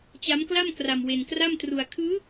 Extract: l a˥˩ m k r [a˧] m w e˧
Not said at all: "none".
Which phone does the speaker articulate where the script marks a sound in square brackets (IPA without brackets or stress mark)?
a˧